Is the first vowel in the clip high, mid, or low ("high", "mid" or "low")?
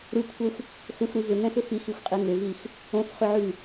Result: high